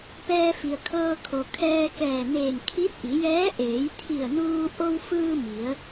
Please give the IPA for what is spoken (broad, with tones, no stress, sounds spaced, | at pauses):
p ɛː˧ f i˩ ə̯ kʰ ɤː˧ kʰ o˩ kʰ ɛː˧ k ɛː˧˩ n eː˧˩ n kʰ i˧˥ t̚ ʔ i˩˧ j ɛː˧˥ ʔ eː˩˧ j t̪ʰ i˧˩ ə̯ n uː˧ ʔ o˧ w f ɯː˧ m i˩˧ ə̯